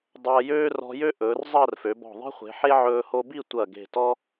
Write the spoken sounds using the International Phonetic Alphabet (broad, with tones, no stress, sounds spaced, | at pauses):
dˤ ɐː˧ j øː˥ r ɔ̤˧ j ø˥ ʔ ɵː˩˧ r zˤ ɐː˥˧ r f ø˩˧ b ɔ̤˧˩ ðˤ e̤˥ χʷ e̤˩˧ ħ e˥ ʕ ɵː˧ h o˧ b i˥˧ tʷ ɐ˧˩ ɡ e̤˧˩ t ɔ˥